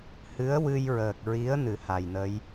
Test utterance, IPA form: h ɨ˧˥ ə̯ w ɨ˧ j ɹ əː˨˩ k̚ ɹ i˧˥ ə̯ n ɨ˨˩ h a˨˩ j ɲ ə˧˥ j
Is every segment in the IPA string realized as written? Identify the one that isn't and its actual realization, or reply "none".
ɲ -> n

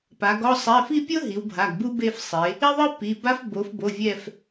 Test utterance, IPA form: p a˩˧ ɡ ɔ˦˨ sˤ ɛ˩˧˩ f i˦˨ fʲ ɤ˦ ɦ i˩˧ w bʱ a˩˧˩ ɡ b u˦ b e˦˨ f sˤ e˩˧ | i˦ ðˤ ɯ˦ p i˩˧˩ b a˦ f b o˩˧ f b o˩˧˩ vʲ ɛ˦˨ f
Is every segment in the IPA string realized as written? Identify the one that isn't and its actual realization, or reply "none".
fʲ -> pʲ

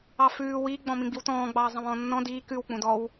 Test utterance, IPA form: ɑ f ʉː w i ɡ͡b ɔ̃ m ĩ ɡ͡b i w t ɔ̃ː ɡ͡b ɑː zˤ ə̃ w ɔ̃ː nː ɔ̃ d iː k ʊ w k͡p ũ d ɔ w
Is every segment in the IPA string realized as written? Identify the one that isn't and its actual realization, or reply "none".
ʊ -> ʉ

